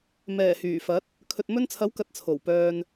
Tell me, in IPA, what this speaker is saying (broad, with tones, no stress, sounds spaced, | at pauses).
m ɛː˨˩ h yː˨˩ f ɐ˨˥ t̚ | kʰ ɵ˨ t̚ m ɵ˧ n t͡sʰ ɐ˨˥ w k ɐ˧ t̚ t͡sʰ o˨˩ w p œː˧ n